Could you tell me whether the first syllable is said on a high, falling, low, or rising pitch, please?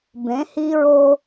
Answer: rising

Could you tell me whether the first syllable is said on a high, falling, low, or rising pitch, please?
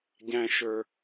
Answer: low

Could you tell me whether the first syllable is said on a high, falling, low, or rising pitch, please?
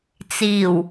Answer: low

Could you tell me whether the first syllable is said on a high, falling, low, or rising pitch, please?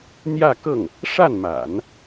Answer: falling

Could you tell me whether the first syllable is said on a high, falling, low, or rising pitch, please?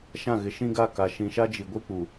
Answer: falling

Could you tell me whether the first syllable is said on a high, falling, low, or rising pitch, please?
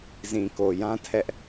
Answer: low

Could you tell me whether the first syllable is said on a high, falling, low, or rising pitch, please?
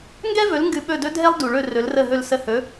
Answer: high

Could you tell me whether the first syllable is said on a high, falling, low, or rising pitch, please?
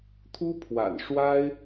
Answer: high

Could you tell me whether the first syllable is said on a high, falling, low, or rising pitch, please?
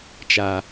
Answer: low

